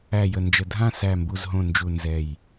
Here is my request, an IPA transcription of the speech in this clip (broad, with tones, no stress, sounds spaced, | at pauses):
æ˨˩ j ə˨˩ n d͡ʒ ə˨˩ dʱ ã˦˨ s æ˨˩ m b u˨˩ z ɦ õ˨˩ n d͡ʒ u˨˩ n z ɛ˨˩ j